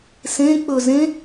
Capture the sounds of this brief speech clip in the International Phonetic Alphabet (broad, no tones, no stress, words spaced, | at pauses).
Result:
sẽ k͡pɵ zẽ